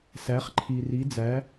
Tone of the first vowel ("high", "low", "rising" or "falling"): rising